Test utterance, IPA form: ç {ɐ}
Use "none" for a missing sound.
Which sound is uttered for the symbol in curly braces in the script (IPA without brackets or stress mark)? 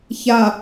a